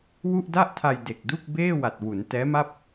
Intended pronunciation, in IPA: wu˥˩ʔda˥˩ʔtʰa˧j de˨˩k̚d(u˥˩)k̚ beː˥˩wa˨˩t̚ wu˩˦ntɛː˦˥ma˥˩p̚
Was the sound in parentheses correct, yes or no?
yes